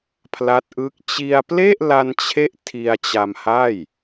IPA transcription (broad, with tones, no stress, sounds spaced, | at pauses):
pʰ l a˦˥ t̚ ʔ ɯ˦˥ k̚ t͡ɕ i˧ a̯ p l e˥˩ ʔ l a˧ n t͡ɕʰ e˦˥ ʔ tʰ i˧ a̯ t͡ɕ a˧ m h a˥˩ j